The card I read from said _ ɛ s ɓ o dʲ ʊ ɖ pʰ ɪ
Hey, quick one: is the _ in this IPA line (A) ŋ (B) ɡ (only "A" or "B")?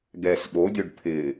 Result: B